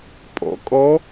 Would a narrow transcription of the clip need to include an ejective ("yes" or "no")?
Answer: yes